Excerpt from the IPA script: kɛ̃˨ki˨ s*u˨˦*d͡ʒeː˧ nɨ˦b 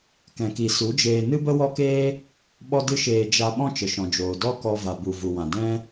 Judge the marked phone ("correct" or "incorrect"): correct